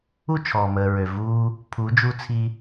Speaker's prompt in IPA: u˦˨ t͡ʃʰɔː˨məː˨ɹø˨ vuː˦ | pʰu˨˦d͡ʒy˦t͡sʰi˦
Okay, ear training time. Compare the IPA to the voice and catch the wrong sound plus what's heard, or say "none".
y˦ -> u˦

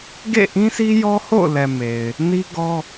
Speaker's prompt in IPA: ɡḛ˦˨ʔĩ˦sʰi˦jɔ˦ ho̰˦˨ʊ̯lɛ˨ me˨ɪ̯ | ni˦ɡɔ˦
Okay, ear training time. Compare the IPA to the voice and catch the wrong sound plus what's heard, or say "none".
none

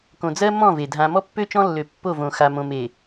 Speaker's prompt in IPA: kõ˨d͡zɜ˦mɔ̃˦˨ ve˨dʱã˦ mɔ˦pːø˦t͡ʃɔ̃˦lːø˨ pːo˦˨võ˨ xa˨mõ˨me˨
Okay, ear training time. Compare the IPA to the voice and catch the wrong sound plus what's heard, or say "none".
none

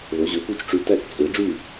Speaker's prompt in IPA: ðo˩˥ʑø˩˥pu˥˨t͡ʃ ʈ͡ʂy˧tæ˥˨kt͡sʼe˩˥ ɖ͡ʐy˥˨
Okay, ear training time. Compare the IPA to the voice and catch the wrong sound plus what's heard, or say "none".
none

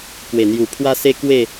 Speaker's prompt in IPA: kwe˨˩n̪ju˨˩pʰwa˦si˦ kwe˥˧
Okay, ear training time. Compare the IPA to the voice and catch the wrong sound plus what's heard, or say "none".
i˦ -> e˦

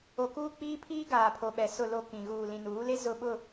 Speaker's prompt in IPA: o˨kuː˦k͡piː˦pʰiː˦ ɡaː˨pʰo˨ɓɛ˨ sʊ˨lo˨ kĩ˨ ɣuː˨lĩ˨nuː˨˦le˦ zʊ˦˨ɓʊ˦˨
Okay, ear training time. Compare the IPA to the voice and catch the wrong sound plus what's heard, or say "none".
none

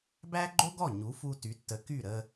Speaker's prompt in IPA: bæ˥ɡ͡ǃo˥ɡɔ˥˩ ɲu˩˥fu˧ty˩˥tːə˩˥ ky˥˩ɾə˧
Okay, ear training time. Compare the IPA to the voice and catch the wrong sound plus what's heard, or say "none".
none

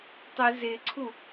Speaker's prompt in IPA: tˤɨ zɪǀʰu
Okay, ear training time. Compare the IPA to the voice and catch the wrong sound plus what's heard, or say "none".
none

